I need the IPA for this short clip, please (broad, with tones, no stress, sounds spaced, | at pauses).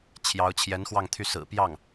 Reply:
t͡ɕʰ j ɑ˧˥ ʊ̯ t͡ɕʰ j ɛ˧˥ n x w ɑ˥˧ ŋ t̪ʰ y˥˩ s ɹ̩˨˩ p j ɑ˥˩ ŋ